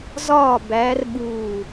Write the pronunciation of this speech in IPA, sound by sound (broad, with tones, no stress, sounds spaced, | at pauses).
z ɒː˧˩ b æː˨˦ r ɓ uː˧˩